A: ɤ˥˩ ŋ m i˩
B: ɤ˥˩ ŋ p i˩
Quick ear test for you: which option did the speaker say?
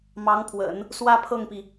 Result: B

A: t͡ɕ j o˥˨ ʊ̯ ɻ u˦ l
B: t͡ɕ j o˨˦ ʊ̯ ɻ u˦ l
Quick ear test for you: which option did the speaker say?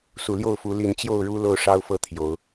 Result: A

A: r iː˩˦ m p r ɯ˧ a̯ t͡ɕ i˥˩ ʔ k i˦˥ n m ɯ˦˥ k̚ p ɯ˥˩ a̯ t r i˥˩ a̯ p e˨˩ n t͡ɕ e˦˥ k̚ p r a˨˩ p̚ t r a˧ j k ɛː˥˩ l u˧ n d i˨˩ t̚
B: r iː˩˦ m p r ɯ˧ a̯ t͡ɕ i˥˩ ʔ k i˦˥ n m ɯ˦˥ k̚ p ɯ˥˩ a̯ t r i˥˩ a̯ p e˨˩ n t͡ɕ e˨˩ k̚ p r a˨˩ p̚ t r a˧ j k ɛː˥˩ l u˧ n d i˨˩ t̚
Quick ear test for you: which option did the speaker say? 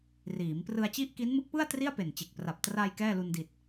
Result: B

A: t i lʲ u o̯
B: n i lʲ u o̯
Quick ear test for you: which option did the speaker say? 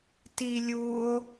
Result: A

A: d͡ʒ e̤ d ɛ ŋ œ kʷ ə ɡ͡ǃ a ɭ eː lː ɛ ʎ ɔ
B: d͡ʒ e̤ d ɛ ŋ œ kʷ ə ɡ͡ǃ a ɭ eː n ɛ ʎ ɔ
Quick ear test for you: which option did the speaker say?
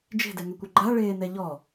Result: B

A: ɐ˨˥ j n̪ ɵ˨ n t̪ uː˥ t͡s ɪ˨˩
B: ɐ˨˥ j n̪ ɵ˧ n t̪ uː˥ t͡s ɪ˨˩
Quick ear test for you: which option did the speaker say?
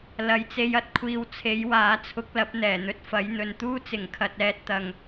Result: A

